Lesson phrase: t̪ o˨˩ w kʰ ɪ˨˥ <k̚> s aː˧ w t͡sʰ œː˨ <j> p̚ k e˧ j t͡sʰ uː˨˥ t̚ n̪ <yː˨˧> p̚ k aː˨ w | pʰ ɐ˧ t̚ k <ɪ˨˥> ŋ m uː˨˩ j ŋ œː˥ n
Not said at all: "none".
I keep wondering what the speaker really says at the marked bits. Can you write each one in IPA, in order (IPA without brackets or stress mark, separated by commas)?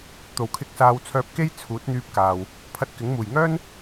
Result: k̚, none, yː˧, ɪ˨˥